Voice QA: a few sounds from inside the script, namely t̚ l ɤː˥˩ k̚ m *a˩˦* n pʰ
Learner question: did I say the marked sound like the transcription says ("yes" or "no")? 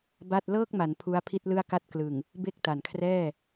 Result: yes